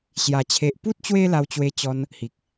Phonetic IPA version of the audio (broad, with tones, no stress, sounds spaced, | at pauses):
ɕ j a˨˩ t͡ɕʰ e˨ ʔ p u˦ t̚ t͡ɕ w e˦ l a˧ w t͡ɕ w e˧ t͡ɕ ɔ˧ n | h i˨ k̚